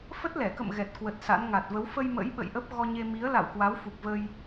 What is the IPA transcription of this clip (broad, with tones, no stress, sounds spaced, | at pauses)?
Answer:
f ə˦˥ t̚ l ɛ˧˩ k ə̰˧˨ m ɣ ɛ˨˩ t̚ k w ə˨˩ t̚ s a̰˧˥ n ŋ a˨˩ t̚ v ə˨˦ w f ə˧ j m ə̰˧˥ j ɓ ə̰˧˨ j ʔ ə˦˥ p̚ ɣ ɔ˧ ɲ e˧ m i˨˦ ə̯ l a̰˧˨ w k w a˨˦ w f u˨˩ k̚ v ə˧ j